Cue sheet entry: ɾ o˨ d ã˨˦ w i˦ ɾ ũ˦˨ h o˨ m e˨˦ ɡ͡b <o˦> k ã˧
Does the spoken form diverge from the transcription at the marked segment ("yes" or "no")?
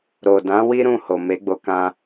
yes